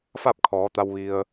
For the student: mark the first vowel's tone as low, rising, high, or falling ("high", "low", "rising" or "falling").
falling